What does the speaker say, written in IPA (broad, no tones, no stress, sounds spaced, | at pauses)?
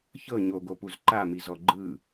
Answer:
ç ɤ ɲ o ɡ o p u z ǃ a m i z ɔ ɡ͡ǃ ɯ